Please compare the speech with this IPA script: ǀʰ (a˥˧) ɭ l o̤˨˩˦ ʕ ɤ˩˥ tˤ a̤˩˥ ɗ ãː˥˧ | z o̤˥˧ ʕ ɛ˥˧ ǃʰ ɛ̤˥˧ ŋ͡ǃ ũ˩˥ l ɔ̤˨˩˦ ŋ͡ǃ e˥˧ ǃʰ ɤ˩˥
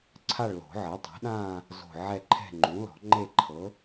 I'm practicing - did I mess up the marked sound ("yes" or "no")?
no